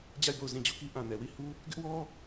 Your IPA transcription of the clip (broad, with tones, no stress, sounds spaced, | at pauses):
d͡ʑ a˦˨ ɪ̯ b o˦˨ ʊ̯ z ĩ˦˨ d͡ʑ u˦˨ k i˦ ʔ ã˨ n ɛ˨ w i˦˨ h u˦ | ɡ ɪ˦ ʔ w ɔ˦